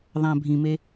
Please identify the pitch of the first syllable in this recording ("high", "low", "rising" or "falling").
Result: low